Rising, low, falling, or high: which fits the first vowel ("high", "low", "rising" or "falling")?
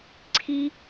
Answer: high